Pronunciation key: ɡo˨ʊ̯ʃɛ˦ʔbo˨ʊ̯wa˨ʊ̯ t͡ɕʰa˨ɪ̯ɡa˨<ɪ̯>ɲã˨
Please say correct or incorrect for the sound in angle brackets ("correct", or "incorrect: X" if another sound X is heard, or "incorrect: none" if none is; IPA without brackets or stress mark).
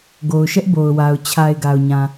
incorrect: ʊ̯